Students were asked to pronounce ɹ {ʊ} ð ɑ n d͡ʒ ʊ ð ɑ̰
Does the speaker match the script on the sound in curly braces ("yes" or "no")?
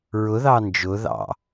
yes